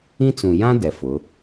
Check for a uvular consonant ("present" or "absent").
absent